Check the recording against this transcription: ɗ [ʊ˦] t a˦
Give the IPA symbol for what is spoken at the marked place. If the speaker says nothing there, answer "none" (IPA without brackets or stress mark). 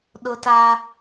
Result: ʊ˦